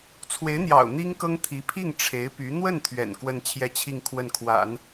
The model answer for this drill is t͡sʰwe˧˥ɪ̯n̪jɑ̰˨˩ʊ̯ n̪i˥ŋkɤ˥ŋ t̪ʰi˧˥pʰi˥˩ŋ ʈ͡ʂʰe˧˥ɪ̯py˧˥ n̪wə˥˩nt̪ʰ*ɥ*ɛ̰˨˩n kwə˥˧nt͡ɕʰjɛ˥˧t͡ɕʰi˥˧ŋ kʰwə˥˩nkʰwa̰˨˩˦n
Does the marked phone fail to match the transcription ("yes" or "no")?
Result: no